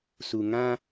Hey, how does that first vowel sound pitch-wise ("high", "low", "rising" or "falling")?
low